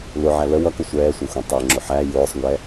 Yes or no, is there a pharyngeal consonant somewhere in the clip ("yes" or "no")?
yes